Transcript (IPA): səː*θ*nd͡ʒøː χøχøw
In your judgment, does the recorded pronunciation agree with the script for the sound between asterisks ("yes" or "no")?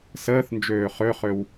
yes